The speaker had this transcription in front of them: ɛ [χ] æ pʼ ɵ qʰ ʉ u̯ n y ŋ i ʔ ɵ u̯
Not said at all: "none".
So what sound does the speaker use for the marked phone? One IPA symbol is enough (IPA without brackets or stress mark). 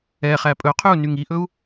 χ